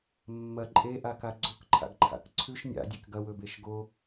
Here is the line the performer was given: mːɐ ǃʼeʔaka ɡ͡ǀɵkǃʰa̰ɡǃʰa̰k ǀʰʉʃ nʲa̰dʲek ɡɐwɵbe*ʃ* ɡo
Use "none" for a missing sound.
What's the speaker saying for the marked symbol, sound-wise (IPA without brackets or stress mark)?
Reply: ʃ